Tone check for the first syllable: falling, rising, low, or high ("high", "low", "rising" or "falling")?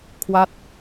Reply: falling